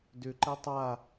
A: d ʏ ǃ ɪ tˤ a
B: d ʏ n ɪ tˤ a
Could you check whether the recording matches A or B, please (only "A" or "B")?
A